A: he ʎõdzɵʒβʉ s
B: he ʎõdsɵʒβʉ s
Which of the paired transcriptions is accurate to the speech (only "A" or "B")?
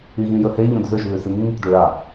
A